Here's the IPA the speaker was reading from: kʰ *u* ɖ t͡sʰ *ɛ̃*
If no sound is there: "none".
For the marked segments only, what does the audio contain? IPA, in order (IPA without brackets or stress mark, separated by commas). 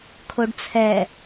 o, ɛ